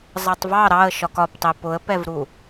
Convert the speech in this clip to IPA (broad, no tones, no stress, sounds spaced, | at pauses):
zˤ ʌ tˤ v ɑ ɾ ɑ ə̯ ʃ ɒ k ɒ p tˤ i p ʊ ə̯ p ɛ v ɾ u